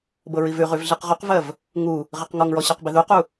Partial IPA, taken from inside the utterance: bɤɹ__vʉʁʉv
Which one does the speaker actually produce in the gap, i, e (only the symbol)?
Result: i